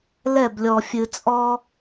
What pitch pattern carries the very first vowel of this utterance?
falling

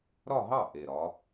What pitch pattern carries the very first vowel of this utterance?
falling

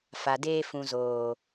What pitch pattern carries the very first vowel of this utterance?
low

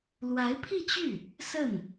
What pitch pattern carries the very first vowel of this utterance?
rising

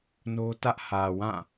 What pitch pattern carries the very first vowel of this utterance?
high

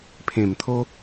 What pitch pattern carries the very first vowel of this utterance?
low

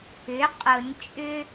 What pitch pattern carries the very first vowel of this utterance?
rising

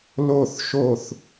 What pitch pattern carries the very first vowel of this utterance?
falling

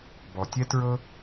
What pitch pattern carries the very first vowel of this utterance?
low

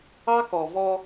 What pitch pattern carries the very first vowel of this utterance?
high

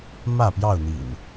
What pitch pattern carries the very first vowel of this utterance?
falling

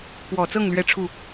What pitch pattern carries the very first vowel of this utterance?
low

